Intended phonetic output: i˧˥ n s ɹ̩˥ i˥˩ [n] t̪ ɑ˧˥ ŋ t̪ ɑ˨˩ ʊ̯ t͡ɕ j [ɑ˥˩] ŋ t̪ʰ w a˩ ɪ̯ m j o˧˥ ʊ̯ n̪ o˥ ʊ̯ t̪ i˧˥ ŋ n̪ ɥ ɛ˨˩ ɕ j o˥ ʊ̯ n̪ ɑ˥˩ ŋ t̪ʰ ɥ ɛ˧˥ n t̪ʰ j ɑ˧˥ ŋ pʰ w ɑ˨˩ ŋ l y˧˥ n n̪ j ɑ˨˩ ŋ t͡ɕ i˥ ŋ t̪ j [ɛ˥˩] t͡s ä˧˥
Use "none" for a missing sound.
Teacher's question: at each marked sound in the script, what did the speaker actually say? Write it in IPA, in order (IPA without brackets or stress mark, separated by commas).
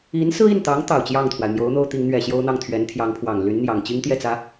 n, ɑ˥˩, ɛ˥˩